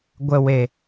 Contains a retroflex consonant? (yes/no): no